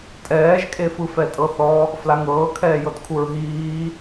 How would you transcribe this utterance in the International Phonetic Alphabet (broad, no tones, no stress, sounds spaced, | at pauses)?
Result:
tʼ ɛː ʒ kʼ e f ɯ f ɛ tʼ ɤ θ ɔ | f l a ŋ ɤː kʰ ɛː j ɤ t kʰ u ɹ ɦ iː